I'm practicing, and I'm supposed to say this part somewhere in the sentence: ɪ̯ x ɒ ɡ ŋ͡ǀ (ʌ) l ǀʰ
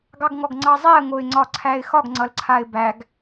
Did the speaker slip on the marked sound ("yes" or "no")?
no